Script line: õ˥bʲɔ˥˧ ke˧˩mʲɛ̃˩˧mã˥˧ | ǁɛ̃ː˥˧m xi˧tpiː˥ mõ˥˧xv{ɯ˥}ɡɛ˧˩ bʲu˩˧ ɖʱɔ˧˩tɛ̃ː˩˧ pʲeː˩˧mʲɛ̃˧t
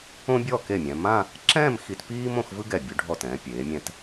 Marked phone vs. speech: correct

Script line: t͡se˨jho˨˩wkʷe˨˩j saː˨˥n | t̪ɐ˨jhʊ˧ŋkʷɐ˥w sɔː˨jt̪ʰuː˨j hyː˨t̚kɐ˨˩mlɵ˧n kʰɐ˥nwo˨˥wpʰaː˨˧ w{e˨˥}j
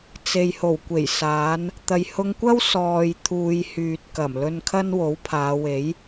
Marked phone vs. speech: correct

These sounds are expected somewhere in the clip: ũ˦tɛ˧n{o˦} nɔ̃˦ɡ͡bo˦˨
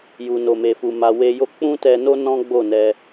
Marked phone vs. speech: correct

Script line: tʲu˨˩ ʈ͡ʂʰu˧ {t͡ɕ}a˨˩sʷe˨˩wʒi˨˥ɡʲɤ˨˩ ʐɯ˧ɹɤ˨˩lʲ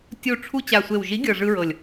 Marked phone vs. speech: correct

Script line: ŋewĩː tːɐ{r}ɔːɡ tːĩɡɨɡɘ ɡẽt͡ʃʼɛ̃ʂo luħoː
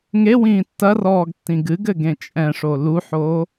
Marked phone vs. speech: correct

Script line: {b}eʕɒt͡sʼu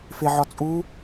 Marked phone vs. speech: incorrect: f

